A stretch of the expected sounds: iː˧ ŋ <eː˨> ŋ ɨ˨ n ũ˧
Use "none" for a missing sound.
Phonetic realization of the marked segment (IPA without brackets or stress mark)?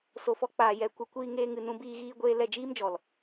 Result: eː˧